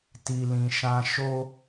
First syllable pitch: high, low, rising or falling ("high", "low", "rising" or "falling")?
low